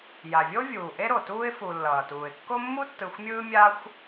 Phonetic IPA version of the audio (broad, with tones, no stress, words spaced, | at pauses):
ja˩vʲo˥ vʲuː˩ʔe˦ ɾo˩tuː˥ɪ̯fu˨ lːʌː˩tuː˩ɪ̯kːo˥ mːu˥tːɯ˨xʷmʲɯː˦ mʲa˦xʷ